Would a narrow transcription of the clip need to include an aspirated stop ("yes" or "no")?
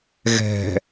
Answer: no